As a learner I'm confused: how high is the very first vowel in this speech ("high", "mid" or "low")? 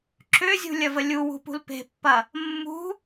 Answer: high